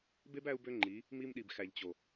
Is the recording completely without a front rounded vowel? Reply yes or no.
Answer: no